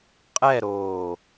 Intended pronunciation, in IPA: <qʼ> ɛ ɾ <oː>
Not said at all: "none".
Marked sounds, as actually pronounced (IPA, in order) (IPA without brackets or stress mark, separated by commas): qʼ, oː